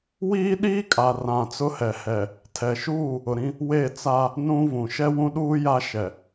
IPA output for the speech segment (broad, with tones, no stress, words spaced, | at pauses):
wiː˦ɗiː˦kʼa˨ rã˨ t͡sʊ˦hɛ˨hɛ˨ | tʰɛ˨ʃuː˦˨ | ʊ˨ɾĩ˦ | we˦˨ t͡sa˦ | nũ˦vũ˨ ʃɛ˦wũ˦ɗuː˦ ja˦ʃɛ˨